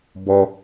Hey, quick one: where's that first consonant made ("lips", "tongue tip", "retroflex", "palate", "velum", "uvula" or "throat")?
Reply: lips